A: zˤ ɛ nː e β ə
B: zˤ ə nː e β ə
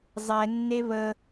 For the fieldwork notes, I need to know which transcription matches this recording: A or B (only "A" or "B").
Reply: A